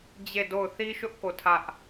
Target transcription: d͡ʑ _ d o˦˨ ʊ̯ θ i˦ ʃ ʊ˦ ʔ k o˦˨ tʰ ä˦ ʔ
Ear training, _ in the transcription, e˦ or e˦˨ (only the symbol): e˦˨